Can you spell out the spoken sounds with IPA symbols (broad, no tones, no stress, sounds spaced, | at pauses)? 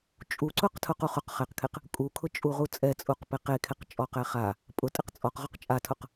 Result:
t͡ʃʼ u ǀ ʊ q tʰ ʊ q u χ ʊ q χ ɛ q kʰ e q | kʼ u kʰ ʊ t͡ʃʼ u ʁ u t͡sʼ ɛ t͡sʼ u q p e q e kʰ e q t͡ʃʼ ɔ q ɛ χ a | pʼ ʊ tʼ ɪ q t͡sʼ ɔ q ʁ ʊ q t͡ʃʼ a tʰ ʊ q